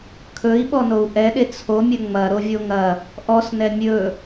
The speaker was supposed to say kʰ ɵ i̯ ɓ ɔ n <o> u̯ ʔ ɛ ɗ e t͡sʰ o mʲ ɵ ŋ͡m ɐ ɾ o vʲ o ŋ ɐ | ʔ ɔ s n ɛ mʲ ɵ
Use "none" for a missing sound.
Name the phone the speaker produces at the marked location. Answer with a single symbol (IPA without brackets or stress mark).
o